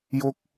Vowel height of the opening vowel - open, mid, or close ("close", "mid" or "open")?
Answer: mid